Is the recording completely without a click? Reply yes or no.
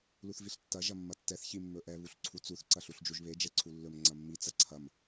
no